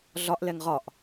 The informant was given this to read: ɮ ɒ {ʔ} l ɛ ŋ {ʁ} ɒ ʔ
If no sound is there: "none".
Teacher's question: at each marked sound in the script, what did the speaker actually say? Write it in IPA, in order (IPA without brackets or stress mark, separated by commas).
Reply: ʔ, ʁ